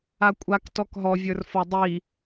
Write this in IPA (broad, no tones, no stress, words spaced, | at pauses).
akʷʼak tɔkɦɔ vʲə˞rfɔdˤi